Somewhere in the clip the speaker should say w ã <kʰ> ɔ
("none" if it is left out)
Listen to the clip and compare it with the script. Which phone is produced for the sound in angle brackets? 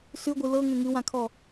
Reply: kʰ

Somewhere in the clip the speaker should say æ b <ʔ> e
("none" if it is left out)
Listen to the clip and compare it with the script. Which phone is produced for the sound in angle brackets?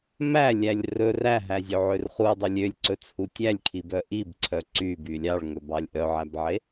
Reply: ʕ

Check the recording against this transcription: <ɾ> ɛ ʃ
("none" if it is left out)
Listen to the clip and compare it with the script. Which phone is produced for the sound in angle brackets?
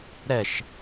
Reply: ɾ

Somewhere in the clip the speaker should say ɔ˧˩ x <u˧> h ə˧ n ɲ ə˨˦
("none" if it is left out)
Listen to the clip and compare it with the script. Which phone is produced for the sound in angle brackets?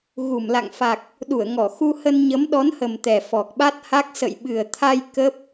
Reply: u˧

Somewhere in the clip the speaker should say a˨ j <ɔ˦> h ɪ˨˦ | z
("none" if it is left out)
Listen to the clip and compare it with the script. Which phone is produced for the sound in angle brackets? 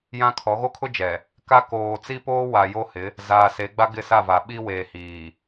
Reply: o˦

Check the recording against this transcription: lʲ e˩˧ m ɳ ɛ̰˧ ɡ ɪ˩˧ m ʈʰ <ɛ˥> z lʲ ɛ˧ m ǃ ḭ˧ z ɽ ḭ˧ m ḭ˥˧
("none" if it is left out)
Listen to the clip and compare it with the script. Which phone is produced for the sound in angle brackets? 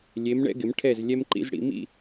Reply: ɛ˧˩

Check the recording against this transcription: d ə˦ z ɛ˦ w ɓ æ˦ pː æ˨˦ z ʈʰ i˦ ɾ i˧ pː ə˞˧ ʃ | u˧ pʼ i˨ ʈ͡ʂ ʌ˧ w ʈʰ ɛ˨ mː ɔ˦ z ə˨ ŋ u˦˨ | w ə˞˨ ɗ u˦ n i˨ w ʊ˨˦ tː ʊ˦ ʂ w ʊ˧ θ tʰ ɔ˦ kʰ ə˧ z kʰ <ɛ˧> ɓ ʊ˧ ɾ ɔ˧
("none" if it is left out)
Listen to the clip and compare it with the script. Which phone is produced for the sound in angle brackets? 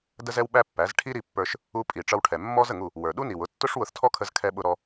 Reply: ɛ˧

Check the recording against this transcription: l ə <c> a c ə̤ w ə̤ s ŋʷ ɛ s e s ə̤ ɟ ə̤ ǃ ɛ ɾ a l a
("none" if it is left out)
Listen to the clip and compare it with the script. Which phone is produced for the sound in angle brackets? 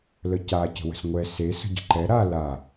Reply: c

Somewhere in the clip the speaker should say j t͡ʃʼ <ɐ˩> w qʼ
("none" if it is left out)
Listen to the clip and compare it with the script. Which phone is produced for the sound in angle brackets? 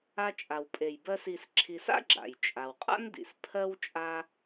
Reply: a˩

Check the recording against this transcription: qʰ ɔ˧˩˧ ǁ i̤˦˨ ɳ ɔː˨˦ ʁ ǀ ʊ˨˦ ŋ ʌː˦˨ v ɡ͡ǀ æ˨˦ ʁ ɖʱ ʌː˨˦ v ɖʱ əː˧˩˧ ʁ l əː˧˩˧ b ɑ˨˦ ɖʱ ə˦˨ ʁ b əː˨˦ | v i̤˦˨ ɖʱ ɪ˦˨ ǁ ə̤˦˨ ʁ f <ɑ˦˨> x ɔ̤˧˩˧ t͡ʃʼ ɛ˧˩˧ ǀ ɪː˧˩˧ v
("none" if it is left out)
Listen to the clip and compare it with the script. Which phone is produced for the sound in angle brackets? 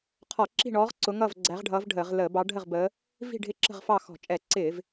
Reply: ɑ˦˨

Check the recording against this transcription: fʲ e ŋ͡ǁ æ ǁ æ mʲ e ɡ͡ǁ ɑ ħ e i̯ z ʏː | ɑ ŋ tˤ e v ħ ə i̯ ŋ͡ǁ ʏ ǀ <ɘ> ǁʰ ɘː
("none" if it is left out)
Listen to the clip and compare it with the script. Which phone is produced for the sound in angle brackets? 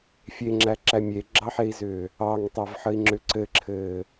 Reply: ɘ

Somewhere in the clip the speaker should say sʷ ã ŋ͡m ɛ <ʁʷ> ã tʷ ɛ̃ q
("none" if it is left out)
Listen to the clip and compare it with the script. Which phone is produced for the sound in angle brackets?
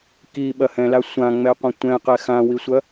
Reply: qʷ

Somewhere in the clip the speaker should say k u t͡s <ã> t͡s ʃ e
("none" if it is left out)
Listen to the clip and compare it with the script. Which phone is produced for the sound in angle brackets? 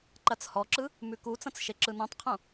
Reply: ɐ̃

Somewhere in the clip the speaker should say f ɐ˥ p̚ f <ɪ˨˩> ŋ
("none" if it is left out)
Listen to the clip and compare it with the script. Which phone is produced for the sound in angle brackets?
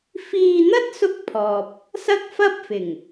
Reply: ɪ˨˩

